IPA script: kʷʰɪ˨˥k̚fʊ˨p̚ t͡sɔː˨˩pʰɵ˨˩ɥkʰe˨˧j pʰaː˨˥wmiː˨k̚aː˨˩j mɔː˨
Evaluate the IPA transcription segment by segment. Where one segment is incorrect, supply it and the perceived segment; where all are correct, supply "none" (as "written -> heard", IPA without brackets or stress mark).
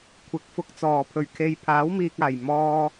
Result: p̚ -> k̚